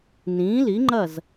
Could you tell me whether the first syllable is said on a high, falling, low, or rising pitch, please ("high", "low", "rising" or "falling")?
rising